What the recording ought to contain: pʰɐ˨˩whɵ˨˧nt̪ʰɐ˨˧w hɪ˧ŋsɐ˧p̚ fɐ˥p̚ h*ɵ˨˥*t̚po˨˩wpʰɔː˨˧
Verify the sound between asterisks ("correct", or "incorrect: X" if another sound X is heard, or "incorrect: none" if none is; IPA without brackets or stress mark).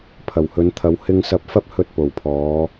incorrect: ɵ˧